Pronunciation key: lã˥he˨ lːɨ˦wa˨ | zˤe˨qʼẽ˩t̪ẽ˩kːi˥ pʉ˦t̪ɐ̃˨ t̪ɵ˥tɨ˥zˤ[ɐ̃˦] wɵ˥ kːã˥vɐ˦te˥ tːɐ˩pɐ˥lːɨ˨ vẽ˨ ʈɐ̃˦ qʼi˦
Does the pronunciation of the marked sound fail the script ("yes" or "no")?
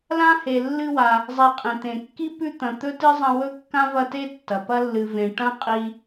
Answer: no